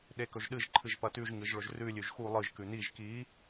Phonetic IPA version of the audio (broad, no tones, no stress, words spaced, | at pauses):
ɗekɵʒɗɨʒ ǃʰɨʒpɐtʉʒ ŋɨʒɭɵʒrʉ lʲʉʒxu lˠɨʒ kʉniʒ ki